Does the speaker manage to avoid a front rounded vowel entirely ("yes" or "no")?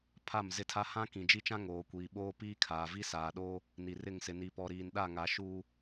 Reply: yes